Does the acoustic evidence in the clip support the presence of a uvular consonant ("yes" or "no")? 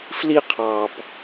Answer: yes